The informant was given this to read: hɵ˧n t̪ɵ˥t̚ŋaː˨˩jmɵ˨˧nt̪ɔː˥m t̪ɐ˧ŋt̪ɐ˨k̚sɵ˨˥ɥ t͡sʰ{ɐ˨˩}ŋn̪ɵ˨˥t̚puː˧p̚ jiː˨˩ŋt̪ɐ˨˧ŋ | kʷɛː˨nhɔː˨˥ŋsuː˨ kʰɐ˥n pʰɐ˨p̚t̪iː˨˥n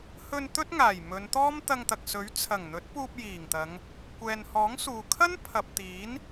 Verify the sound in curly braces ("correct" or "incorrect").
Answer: correct